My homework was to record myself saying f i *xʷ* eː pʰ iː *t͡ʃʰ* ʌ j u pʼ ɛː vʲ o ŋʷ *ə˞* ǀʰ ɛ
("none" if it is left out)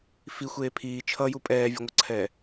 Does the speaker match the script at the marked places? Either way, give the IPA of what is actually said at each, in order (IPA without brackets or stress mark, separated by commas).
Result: xʷ, t͡ʃʰ, ʌ